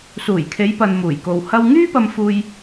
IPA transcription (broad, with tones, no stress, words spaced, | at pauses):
suː˨˩jkʰe˨˧jpɐ˨n muː˨˩jko˨w hɐ˧wŋyː˥pɐ˧mfuː˧j